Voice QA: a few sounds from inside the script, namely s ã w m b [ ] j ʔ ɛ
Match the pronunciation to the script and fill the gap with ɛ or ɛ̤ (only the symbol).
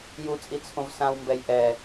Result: ɛ